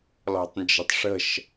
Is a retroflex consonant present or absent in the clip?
present